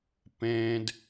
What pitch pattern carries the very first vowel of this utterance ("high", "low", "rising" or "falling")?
high